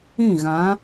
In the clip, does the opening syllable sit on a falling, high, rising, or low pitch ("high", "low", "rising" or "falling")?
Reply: falling